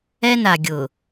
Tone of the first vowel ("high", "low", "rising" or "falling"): high